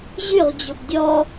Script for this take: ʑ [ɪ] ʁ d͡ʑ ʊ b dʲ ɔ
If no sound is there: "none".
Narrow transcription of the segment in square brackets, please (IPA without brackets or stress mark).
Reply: y